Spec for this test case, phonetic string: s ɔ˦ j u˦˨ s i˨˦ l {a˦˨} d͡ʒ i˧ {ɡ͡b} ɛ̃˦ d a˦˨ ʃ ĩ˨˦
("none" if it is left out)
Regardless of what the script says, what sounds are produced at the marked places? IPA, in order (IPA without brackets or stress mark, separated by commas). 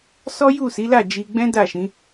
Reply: a˦˨, ɡ͡b